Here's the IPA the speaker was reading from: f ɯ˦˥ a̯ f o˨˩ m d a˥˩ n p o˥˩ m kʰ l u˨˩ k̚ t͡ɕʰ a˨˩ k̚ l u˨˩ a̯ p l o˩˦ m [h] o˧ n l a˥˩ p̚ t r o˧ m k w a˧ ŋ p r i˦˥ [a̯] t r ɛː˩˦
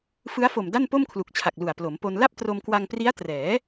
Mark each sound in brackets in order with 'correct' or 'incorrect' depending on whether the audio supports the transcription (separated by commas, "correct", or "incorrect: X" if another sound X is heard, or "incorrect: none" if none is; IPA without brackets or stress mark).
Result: incorrect: p, correct